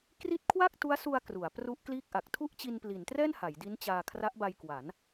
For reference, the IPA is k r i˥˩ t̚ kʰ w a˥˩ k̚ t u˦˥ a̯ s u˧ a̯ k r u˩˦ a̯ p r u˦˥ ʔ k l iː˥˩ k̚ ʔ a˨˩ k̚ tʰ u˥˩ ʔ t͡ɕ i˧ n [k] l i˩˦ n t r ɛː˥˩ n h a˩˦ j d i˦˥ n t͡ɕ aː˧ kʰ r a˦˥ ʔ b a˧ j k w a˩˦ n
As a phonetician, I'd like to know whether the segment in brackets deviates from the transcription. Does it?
yes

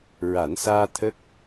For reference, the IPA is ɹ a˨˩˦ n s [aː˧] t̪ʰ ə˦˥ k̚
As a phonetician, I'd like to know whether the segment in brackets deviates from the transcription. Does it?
no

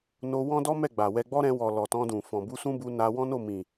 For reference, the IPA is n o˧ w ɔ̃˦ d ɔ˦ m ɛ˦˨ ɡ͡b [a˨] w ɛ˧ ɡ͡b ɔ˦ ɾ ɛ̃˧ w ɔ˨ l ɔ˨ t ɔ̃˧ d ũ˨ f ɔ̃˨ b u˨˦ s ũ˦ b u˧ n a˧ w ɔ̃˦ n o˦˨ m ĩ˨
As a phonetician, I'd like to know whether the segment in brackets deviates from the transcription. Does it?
no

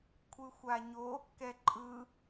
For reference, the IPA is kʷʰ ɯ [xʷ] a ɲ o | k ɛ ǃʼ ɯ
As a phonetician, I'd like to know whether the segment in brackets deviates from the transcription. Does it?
no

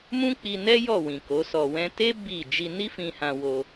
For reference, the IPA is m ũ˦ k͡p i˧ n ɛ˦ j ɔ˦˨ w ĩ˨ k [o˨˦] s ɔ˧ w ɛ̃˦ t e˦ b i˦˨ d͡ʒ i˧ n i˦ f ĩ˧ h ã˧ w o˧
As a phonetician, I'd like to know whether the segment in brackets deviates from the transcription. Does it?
no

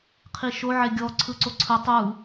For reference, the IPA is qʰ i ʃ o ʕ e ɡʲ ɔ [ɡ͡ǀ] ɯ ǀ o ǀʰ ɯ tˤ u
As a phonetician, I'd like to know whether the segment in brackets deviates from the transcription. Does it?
yes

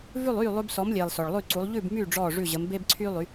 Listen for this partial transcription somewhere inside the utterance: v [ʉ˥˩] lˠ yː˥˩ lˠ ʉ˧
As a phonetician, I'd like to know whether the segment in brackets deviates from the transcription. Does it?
no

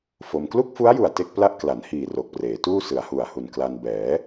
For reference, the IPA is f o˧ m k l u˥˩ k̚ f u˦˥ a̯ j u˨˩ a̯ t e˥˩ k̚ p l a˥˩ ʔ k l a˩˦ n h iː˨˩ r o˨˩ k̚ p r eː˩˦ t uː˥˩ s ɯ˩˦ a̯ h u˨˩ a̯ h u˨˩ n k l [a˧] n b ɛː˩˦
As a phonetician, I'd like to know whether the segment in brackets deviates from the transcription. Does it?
no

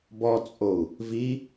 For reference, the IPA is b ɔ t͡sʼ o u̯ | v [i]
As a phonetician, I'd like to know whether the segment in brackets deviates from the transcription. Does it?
no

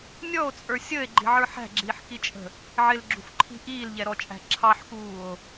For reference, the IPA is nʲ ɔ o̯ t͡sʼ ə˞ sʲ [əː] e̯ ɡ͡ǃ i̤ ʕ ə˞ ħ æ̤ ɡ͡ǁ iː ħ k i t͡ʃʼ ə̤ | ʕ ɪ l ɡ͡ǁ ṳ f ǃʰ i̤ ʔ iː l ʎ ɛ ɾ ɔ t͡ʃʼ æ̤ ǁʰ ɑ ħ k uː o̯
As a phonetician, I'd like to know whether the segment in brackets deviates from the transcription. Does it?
no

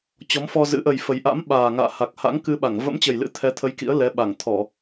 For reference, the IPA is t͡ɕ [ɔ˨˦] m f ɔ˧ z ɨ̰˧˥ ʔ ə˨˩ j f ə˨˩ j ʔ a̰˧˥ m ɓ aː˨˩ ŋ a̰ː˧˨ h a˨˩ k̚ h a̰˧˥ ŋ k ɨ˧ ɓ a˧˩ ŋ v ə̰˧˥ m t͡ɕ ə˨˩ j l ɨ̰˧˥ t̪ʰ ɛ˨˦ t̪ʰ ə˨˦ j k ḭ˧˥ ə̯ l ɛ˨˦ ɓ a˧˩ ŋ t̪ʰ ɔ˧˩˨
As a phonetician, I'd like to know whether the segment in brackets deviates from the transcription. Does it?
no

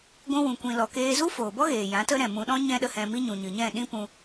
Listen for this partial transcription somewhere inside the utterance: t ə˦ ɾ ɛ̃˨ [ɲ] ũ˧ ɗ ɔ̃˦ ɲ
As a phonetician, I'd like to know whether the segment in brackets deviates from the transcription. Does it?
yes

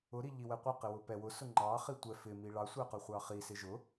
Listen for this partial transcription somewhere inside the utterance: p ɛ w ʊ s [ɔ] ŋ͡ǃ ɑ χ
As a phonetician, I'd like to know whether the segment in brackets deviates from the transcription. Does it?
yes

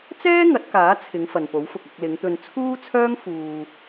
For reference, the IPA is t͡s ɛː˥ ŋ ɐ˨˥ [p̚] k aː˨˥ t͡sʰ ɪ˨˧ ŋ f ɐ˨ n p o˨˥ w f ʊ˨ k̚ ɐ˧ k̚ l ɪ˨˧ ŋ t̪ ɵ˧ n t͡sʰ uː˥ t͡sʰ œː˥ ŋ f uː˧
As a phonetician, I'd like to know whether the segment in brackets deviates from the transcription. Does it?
yes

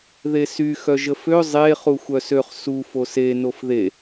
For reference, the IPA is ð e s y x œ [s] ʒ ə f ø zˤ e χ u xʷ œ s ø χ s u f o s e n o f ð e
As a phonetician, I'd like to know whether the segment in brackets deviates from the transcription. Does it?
yes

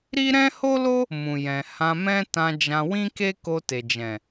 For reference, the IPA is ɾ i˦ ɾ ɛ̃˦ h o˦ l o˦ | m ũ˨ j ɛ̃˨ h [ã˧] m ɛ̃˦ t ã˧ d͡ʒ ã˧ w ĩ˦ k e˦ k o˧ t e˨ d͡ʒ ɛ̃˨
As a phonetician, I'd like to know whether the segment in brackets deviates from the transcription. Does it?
no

